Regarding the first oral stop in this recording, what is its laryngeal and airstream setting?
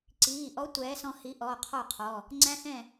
click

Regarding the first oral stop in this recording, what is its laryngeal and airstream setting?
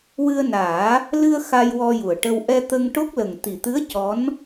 plain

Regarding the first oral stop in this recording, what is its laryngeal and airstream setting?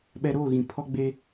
implosive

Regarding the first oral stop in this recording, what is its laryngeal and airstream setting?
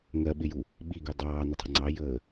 implosive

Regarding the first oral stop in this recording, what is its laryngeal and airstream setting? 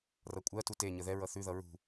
ejective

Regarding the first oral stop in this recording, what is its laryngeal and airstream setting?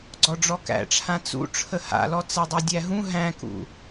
click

